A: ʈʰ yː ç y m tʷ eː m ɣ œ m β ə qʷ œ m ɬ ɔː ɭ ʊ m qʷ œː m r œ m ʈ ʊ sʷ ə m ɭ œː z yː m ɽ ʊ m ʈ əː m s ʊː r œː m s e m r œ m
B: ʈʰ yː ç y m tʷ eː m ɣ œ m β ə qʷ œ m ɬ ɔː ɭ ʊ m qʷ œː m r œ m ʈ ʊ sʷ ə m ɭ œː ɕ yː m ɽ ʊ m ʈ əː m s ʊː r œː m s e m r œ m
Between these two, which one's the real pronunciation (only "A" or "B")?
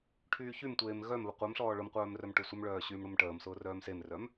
B